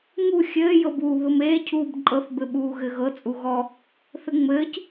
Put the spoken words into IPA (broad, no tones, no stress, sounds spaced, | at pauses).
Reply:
ŋ u xʲ ɘː j ɤ b uː β ɘ m eː cʰ uː b ǃʼ ɤ θ b ɘ ɓ uː ɣ ɘ ɣ ɤ t͡sʼ u ɣ ɔ | θ ɘ ŋ͡m ɘː c